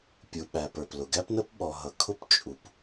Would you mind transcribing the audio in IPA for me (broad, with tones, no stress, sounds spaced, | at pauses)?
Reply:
pʲ u˩ ɓ æ˩ p ə˞˩ p l ʊ˩ ɡ æ˥ p n ə˥ p ɓ ɔ˩ ɦ ʌ˩ kʰ ʊ˥ p t͡ʃʼ u˩ p